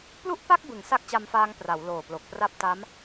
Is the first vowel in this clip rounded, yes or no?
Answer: yes